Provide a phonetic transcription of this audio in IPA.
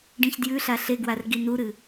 ɖĩçdjʉɬa ɬeɡwar ɡinuɾɨ

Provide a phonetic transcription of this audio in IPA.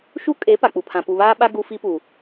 ʃu˦kʼe˨˦ pa˨k͡pu˨pʰã˨ pu˨βaː˦ɓa˦ ɡu˦fi˦pu˨

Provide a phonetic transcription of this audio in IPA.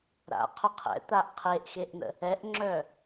ɾa̰qʰʊ qʰɛ̰t̪aʔ qʰeʔxeʔn̪ə̰ | ɛʔŋ͡ǁœ

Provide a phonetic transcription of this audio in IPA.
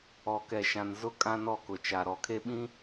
ɔ˨kɛ˨ʃã˨n zʊ˦ kʼã˦nɔ˦˨kʊ˨ t͡ʃa˨ɾɔ˨kʰe˦ɓĩ˦

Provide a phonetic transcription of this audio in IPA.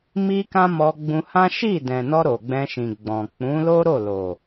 mi˦kã˦ mɔ˧ɡ͡bũ˧hã˦ ʃi˦˨ dɛ̃˨nɔ˧ ɾo˨ɡ͡bɛ̃˧ʃĩ˨ ɡ͡bɔ̃˨ k͡pũ˨˦lo˦ɾo˦˨ lo˨

